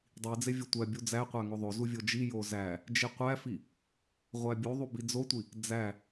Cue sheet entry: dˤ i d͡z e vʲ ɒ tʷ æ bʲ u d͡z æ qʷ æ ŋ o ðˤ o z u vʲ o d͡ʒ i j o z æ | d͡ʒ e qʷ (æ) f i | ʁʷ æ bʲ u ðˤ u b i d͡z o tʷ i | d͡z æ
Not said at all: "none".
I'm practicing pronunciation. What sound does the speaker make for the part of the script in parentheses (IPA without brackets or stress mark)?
æ